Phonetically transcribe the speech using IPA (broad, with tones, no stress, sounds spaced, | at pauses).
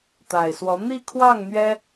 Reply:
t̪ a˨˩ ɪ̯ s w ɔ˧˥ n̪ i˥˧ kʰ w ɑ˥˩ ŋ n̪ ɥ ɛ˥